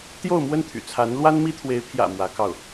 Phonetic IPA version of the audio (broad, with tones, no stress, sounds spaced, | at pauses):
t̪ j o˥˧ ʊ̯ m w ə˥˩ n t̪ʰ y̰˨˩ t͡sʰ a˧˥ n l w a˥ n m i˥ t̪ʰ w e˧˥ ɪ̯ pʰ j ä̰˨˩ m w ä˧˥ k ɑ˥˩ ʊ̯